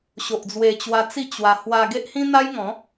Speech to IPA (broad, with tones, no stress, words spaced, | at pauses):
ɕo˨ʔd͡zwe˧ t͡ɕwa˧t͡si˥˧ t͡ɕwa˧ hwa˧ɡe˦ʔhĩ˦ n̪a˦jŋɔ̃˨˦